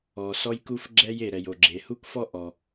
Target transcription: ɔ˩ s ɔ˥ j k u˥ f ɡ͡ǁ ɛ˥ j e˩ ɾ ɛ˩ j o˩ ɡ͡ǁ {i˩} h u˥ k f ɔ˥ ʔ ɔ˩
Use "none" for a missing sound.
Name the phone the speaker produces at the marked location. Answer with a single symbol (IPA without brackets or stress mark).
e˩